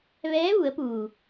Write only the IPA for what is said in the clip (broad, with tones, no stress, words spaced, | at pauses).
ʋɛː˧˥ʋu˩˧ə̯puː˩